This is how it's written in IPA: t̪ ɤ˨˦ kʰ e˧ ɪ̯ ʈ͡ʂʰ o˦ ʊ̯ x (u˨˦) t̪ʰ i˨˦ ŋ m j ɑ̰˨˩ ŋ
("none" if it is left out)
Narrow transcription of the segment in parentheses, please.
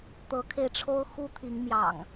u˦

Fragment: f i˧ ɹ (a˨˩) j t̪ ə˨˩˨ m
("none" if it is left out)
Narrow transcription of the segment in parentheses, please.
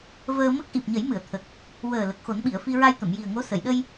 a˧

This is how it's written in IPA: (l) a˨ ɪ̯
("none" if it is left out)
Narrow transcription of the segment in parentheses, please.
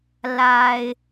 l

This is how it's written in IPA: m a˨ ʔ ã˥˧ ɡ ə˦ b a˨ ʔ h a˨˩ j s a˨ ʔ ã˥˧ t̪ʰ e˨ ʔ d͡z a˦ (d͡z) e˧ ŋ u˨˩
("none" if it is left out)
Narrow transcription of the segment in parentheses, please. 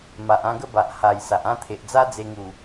d͡z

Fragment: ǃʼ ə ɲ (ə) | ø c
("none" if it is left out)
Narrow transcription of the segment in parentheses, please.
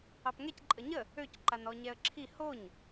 ə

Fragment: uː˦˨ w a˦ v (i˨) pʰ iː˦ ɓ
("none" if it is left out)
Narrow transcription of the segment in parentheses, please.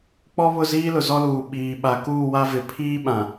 ɪ˨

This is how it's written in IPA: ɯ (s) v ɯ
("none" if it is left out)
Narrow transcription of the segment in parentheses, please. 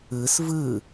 s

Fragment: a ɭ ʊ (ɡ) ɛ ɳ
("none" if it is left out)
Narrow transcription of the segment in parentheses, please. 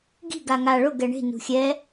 ɡ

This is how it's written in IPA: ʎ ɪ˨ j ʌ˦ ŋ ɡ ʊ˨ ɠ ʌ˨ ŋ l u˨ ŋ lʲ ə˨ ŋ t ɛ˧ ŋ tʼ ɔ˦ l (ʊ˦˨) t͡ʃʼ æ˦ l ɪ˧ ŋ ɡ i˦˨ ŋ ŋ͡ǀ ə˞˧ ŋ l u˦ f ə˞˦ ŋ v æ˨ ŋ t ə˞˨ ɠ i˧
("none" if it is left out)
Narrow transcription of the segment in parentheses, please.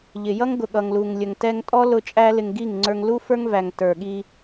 ʊ˦˨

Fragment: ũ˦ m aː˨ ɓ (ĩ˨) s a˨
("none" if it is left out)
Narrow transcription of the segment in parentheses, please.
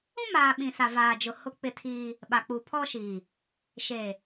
ĩ˨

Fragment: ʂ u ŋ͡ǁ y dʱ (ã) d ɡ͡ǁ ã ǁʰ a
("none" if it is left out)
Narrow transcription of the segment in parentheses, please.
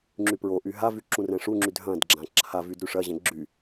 ɐ̃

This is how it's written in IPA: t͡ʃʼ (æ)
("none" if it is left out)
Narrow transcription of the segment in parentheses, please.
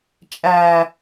æ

